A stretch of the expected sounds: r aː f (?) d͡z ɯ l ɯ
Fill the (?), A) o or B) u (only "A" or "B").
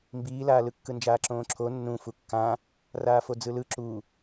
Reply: A